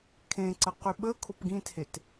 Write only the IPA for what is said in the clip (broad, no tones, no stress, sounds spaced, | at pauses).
kʰ ẽ ǀ ə q y ɓ əː kʰ o p ɡ ĩ t h e t